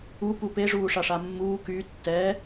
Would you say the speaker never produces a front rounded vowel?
no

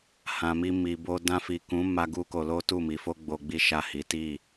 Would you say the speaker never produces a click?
yes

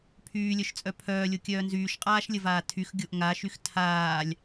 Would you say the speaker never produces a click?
yes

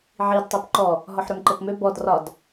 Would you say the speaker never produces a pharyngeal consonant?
no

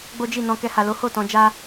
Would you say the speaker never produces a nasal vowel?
no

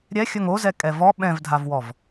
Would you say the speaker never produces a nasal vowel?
no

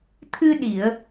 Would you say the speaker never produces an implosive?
no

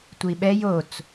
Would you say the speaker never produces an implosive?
no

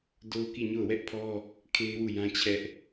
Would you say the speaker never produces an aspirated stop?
no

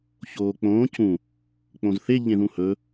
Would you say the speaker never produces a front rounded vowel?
yes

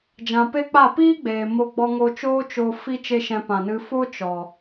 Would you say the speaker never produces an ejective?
yes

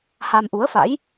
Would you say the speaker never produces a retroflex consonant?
yes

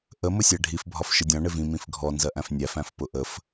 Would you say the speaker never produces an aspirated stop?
yes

